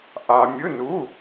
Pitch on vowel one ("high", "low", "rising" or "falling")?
low